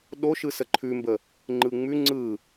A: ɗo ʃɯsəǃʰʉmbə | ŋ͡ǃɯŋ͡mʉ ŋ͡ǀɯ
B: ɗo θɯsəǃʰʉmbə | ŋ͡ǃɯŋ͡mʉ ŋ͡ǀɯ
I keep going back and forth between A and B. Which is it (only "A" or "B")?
A